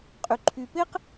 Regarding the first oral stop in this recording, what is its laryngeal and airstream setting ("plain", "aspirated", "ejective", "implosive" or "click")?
ejective